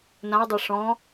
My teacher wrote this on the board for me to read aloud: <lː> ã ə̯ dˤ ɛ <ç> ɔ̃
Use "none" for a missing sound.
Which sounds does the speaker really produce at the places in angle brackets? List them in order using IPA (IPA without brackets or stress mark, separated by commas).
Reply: n, ʂ